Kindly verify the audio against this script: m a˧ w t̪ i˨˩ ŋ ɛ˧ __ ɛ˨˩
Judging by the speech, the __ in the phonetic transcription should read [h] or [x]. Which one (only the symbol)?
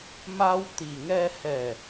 h